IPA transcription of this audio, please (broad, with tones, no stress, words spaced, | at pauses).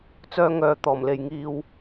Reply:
t͡sœː˧ŋœː˨ t̪ɔː˨˩mle˨jŋiː˧w